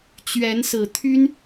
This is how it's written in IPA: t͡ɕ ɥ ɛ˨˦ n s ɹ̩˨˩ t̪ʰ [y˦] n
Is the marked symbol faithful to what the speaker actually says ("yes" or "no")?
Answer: yes